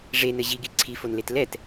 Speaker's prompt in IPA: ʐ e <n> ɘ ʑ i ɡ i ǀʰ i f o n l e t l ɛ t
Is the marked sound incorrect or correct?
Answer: correct